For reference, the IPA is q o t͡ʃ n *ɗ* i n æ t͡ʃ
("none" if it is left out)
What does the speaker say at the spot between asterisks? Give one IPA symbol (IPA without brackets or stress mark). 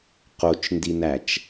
d